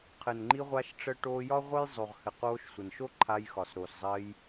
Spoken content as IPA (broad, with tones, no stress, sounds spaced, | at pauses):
qʰ ɘ˨ n ŋ͡ǃ i˧ ʁʷ a˧ ʃ ʈ͡ʂ ə˧ ʈ oː˧ j ɒ˦ ʁʷ ə˦ j zˤ o˨ ʁ h ɘ˨ q oː˧ ʃ sʷ ɘ˨ n ʃ o˦ ǃʰ a˧ j x ɒ˨ s ɾ o˨ s zˤ ɘː˧ j